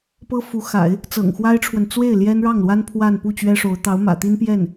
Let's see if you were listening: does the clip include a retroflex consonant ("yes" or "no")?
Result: yes